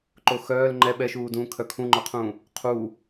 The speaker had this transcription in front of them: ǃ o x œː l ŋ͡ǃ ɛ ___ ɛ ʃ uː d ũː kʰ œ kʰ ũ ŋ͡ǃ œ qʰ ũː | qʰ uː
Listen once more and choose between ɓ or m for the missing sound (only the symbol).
ɓ